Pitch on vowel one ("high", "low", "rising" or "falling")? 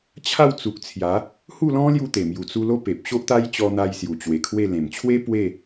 falling